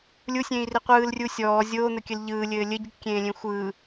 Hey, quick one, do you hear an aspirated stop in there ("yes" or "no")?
no